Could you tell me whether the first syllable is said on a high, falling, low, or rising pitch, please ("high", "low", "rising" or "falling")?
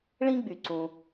high